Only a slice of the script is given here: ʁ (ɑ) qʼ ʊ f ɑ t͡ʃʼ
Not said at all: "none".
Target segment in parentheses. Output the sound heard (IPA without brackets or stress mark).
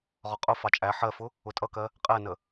ɒ